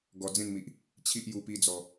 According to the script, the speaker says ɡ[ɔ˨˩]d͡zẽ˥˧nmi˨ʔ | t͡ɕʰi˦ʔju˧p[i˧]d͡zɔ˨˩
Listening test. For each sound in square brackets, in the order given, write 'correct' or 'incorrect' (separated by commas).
correct, correct